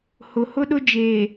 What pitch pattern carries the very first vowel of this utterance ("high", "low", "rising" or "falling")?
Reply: low